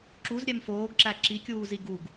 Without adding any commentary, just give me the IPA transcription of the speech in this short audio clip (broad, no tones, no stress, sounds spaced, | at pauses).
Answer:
ǁ u z ɾʲ ɛ m f oː ɡ ǁ æ ǁ i kʲ uː z i ɡ u ɡ